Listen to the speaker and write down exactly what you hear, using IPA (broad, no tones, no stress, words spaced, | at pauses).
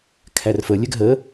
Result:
kʰærfə lʲɛɡɦə